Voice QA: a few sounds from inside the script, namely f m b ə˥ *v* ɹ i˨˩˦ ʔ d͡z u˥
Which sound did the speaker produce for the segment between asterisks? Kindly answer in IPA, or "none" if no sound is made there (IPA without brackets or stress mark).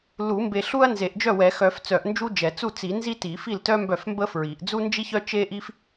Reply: f